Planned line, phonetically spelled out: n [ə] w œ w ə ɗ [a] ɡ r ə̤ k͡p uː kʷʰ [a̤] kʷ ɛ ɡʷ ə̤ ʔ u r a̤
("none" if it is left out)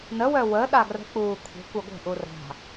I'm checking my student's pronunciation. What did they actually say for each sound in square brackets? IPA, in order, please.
ə, a, ə̤

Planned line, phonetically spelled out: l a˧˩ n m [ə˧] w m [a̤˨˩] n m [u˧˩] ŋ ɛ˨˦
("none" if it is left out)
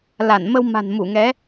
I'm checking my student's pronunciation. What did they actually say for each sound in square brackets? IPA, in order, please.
ə˧, a̤˨˩, u˧˩

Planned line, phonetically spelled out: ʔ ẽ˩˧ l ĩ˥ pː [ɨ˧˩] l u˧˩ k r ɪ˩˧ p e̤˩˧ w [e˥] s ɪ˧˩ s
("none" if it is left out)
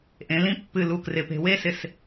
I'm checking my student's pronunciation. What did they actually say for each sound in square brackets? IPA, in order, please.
ɨ˧˩, e˥

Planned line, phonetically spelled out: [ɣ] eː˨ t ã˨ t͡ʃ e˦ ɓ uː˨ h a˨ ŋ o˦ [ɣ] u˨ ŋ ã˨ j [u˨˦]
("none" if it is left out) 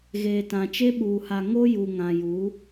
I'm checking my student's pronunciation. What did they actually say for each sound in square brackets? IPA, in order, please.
ɣ, j, u˨˦

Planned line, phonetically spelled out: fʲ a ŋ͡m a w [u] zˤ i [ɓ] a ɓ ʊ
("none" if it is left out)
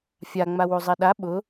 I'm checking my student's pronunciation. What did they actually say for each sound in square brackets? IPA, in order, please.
u, ɗ

